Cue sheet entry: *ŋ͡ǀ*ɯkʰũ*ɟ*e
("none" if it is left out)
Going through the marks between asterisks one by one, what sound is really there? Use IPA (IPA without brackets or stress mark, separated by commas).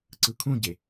ǀ, ɟ